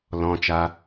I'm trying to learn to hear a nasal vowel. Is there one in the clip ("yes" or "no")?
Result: yes